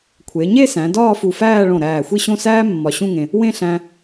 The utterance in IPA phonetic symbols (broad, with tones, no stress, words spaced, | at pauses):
kʷʰe˩˧ɲe˥˧sæ̃˩˧ dɒː˥˧fu˧˩fæː˥˧ɭõ˧˩ ɾæː˧˩xʷi˥˧ɕõ˥˧ sæː˥mːɒ˧˩ɕũ˥˧ŋẽ˧ | wẽ˥˧ɬæ̃˧